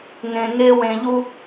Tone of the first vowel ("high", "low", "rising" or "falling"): low